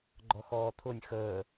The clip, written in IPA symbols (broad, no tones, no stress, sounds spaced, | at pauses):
ɡ͡ǃ ɔ x ɔː t̪ʰ ʊ nʲ x əː